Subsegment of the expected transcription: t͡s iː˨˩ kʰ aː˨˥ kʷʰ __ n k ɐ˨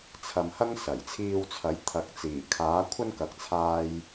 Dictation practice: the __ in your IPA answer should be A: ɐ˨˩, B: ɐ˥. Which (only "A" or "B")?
B